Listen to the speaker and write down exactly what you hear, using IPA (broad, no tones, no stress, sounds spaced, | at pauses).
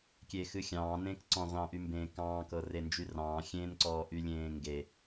kʲ eː x ɨ xʲ ɑ̃ː n ẽː k ǀ ɔ̃ ʁʷ ɑ̃ ʔ y m b ẽː k ɑ̃ː k ɤ r e n d͡ʒ y r ɑ̃ː xʲ ẽ n ǀ ɔː ʔ y lʲ ẽː ŋ ɡ e